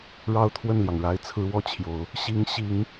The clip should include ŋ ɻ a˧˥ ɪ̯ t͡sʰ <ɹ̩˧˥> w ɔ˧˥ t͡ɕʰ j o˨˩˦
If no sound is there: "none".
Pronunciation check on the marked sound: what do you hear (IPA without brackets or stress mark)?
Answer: ɹ̩˧˥